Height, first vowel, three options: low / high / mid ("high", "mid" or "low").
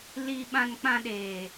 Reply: high